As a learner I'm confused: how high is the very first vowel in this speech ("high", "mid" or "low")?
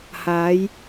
low